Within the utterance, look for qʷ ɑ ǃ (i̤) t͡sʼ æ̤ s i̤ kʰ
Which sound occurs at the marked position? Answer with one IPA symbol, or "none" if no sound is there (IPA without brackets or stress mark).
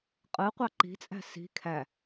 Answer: i̤